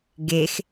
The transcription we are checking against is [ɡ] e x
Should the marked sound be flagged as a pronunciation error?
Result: no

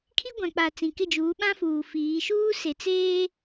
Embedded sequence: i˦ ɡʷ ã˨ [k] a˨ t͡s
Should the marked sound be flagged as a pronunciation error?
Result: yes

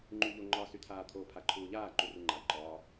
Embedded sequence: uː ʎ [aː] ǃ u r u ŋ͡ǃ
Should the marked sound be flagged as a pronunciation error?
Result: no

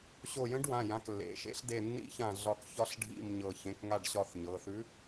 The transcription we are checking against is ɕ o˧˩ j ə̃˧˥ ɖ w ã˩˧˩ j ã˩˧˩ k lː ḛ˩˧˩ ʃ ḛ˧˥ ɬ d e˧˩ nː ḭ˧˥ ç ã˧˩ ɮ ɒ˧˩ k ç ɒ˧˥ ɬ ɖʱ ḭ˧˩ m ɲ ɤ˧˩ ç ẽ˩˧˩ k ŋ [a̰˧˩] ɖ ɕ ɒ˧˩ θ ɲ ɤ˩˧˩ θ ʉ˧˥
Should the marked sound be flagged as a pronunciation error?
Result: yes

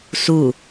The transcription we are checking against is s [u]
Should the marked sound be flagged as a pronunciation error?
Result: no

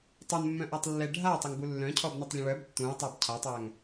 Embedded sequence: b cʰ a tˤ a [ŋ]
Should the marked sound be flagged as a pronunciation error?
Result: no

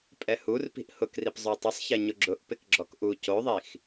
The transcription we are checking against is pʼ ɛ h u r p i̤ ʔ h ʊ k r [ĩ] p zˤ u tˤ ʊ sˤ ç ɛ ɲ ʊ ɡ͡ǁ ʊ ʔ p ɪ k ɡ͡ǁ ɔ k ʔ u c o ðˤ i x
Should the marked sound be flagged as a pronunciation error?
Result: yes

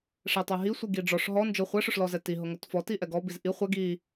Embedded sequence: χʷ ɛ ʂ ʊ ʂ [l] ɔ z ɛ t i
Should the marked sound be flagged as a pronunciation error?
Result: no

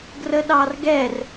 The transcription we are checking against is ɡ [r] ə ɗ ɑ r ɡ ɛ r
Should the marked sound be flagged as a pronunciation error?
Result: no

